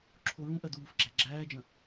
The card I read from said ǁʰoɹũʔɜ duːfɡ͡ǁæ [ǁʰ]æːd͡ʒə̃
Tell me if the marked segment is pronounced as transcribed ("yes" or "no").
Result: no